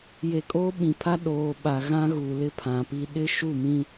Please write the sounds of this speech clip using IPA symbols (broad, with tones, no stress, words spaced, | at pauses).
je˨kʼoː˦ɓĩ˨pʰa˦ ɗoː˨ɓa˨ ɣã˦ɣu˨lɪ˦ pʰã˨pi˦ ɗɪ˦ʃu˦˨mĩ˦